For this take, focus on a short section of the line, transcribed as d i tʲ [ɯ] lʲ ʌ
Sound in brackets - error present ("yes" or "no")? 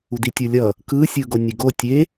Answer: no